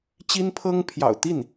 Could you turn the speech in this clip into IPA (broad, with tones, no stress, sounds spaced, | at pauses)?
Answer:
t͡ɕ i˥ n pʰ ɤ˥ ŋ pʰ j ɑ̰˨˩ ʊ̯ t̪ i˥˩ n